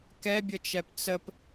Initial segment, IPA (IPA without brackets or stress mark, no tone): k